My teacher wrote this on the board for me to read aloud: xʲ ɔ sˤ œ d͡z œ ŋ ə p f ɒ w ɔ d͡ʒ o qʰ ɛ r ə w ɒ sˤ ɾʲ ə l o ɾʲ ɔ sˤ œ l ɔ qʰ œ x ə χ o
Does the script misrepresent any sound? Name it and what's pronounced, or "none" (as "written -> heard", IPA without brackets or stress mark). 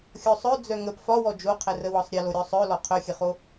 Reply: x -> xʲ